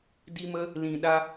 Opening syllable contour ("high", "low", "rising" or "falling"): high